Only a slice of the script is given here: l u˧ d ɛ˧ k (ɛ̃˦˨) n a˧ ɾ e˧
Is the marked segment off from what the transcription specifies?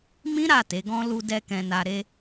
yes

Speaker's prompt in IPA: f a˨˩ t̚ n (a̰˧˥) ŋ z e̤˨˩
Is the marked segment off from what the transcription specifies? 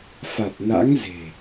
no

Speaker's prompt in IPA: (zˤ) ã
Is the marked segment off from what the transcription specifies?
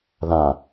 yes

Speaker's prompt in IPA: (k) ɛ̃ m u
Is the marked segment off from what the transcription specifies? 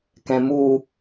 no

